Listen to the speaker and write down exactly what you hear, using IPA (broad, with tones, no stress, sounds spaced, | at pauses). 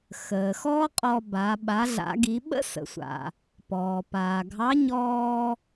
x əː˩ x ɔː˥ qʼ ɔ˧ b a˩˧ ɓ a˩˧ ɮ a̰˩˧ ɡ i˩˧ ɓ ə̰˥ s ə̰˩˧ sʷ a̰˩ | p ɔː˩ p aː˩ ɡʱ ɑ˧˥ ɲ ɔː˧